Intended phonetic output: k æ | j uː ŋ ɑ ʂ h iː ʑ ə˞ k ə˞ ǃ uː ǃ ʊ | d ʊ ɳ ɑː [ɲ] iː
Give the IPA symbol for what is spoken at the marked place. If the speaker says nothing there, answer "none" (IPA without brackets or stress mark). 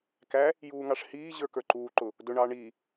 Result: ɳ